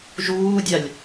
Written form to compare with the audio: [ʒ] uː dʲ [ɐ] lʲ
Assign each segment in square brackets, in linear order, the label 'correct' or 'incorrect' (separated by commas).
correct, incorrect